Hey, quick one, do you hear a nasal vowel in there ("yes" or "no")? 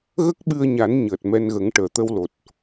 no